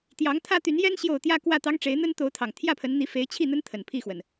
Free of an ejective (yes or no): yes